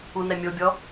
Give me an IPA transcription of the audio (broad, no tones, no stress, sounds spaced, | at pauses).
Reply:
u n ɛ mʲ o bʲ ɔ